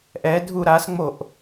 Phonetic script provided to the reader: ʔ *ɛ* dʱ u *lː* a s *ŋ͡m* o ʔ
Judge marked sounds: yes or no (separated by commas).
yes, no, yes